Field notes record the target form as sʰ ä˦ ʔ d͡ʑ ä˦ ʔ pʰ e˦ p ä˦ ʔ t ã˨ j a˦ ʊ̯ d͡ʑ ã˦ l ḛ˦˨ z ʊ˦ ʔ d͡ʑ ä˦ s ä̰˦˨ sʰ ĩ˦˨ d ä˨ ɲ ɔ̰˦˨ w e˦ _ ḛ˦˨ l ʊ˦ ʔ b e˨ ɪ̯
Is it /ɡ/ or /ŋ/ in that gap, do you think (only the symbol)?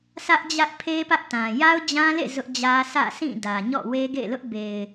ɡ